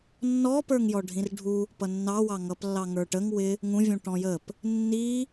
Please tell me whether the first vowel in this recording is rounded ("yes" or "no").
yes